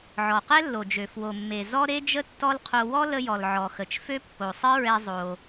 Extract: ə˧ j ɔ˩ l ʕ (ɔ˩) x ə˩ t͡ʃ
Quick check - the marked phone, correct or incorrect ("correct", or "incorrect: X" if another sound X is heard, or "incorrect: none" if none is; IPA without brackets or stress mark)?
correct